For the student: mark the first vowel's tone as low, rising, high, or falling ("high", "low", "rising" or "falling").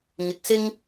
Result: rising